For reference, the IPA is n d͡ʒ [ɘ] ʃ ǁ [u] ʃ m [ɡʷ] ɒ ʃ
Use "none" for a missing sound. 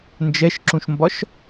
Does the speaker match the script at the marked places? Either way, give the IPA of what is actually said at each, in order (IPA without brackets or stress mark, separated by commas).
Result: ɛ, ũ, b